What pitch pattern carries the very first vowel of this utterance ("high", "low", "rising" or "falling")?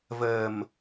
low